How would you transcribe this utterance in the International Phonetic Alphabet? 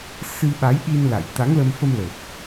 sɨ˧ ɓa˨˦jɗi˧n la̰˧˨j t̪a˨˦ŋlə˧mfə˧mlə˨˩p̚

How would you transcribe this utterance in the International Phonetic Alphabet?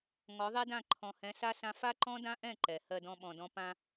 ŋɔ˨˦ðˤɛ˦dã˦˨ ǃʰɔ̃˨hɛ̃˨˦ sa˦sã˦ fa˦ǃɔ̃˦dã˦ʔɛ̃˦˨ ǃɛ˨ hɜ˧dɔ̃˧ɓɔ̃˨dɔ̃˧ pã˧

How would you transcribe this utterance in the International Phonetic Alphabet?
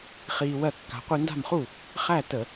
χiː˧wɜ˥˩kːa̤˨˥ qʷi˧nda̤˥˩mχu˥˩ | χæ˥˩ tə˧˩˧

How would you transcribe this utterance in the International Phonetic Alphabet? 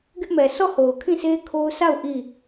ɡɪ˦ʔmɛ˨ sʰɔ˦˨ ho˨ʊ̯kʰĩ˦˨sʰe˦ kʰo˦ʊ̯ sa˦˨ʊ̯ ʔi˦˨

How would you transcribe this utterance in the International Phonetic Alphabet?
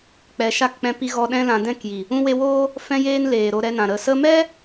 k͡pɛ˨ ʃa˦˨kk͡pɛ̃˧pi˧ɣɔ˧ ɗɛ̃˧lã˨dɛ̃˦˨kji˨ | ũ˧we˧ woː˦ | fɛ̃˧jeː˧n leː˨ɾo˧ɾɛ˧nã˨ ɾə˨sə˧mɛ˦

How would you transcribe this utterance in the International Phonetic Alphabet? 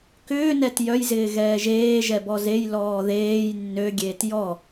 kʏːnɛt jœjzɪː ɣɛːʒeːʒɛ bɔzej lɔːðeːj nːøɡʲeːt jɔ

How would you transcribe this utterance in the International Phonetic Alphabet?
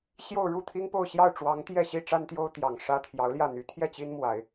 ɕjo˥˧ʊ̯ɻu˥˩t̪ʰi˥ŋpo˥˧ʊ̯ ɕjɑ˥˩ʊ̯ʈ͡ʂwɑ˧˥ŋ t̪jɛ˥˩ɕi˥ ʈ͡ʂa˥nt̪jo˥ʊ̯ t̪jɑ˨˩ŋʂä˥ t̪ʰjɑ˧˥ʊ̯ljä˥˩n̪y˧˥ t̪ʰjɛ˥˩ t͡ɕi˥nmwa˨˩˦ɪ̯

